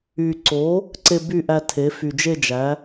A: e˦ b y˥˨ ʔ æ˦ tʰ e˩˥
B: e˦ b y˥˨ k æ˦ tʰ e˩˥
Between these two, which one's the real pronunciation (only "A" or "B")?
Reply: A